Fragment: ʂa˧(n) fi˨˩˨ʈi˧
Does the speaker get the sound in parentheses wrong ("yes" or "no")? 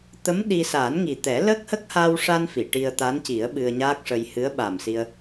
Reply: no